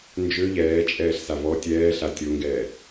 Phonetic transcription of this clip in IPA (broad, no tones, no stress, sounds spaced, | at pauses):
n d͡ʒ ø ʎ ɛː t͡ʃʼ ɛː ɬ s a v ɔ tʲ ɛː ɬ a tʲ o ŋ ɡ ɛː